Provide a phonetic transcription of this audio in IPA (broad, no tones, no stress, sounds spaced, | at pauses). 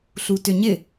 ɬ u t ʏ ɲ ɪ